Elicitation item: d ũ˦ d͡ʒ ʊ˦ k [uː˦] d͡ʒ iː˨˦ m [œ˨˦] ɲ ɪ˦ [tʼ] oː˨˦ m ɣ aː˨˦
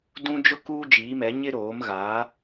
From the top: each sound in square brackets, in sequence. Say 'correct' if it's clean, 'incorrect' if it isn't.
correct, incorrect, incorrect

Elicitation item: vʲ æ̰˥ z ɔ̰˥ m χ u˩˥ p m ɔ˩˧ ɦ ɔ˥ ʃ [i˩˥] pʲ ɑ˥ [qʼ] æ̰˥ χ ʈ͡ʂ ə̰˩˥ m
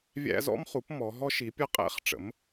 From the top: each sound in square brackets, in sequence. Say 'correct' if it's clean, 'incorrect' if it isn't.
correct, correct

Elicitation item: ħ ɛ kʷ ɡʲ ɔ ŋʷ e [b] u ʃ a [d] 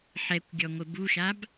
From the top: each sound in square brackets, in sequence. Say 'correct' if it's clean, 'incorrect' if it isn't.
correct, incorrect

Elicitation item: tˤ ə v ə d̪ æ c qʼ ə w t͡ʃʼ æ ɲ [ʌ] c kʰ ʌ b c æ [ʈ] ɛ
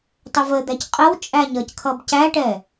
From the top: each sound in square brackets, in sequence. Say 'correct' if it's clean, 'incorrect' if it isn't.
correct, correct

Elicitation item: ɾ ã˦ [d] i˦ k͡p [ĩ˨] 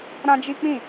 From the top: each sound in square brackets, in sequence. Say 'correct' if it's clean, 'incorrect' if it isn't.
incorrect, incorrect

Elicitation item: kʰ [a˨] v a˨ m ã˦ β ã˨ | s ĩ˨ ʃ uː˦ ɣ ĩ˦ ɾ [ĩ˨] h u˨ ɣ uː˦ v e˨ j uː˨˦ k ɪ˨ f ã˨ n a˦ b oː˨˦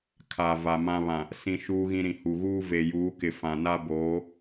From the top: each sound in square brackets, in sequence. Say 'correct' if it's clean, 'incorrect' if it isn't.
correct, correct

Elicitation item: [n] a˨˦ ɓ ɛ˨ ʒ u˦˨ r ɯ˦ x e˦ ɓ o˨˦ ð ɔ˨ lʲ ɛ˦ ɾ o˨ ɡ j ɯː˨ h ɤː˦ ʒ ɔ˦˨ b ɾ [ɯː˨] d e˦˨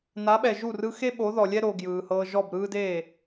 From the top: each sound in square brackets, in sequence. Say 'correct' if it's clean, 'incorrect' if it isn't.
correct, incorrect

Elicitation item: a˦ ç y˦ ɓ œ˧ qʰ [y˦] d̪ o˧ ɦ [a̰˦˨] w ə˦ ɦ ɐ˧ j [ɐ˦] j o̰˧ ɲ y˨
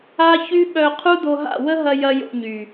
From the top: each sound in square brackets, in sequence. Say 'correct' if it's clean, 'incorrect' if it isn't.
incorrect, correct, correct

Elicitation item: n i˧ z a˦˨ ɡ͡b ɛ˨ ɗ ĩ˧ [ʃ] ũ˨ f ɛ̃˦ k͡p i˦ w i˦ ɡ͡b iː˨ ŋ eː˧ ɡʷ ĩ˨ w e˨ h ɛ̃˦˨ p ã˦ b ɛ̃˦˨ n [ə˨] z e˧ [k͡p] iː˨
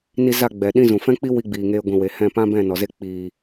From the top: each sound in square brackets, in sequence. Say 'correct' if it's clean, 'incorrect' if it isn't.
incorrect, incorrect, correct

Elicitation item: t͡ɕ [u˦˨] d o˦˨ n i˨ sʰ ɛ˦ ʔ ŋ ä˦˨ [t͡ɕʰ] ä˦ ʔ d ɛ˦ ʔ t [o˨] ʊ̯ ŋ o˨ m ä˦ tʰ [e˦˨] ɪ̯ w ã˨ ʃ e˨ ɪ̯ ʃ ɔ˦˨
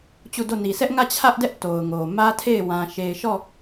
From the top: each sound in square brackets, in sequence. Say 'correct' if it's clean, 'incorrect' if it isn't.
correct, correct, correct, correct

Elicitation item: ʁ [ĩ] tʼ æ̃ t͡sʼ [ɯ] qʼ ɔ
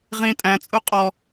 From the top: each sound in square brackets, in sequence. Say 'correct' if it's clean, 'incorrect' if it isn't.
correct, incorrect

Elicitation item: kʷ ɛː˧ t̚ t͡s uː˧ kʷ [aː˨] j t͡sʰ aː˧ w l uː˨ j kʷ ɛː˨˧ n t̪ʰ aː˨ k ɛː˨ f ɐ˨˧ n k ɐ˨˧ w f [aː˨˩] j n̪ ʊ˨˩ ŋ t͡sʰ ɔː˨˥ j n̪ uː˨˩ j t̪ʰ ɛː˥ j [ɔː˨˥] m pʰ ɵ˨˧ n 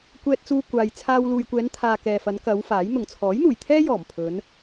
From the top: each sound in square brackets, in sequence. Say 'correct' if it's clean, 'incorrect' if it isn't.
correct, incorrect, incorrect

